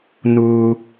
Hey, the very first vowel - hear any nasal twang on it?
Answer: no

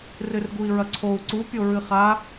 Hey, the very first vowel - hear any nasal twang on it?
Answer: no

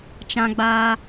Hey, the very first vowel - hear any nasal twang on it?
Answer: yes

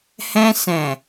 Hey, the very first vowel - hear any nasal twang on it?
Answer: yes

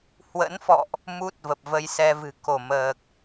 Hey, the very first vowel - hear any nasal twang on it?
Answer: no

